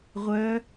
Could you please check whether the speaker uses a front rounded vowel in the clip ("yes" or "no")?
yes